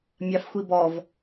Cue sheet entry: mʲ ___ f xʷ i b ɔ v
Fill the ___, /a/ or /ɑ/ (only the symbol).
ɑ